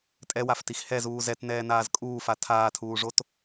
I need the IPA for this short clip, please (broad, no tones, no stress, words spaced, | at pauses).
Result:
tʼɛwaftix hɛzuː zɛtnɛːnaːz kʼuːfa tʰaːtʰuːʐot